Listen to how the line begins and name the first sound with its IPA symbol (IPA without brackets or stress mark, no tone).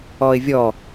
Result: ɔ